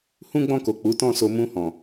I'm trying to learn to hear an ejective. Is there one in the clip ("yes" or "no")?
no